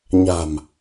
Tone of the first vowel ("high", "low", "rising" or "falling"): low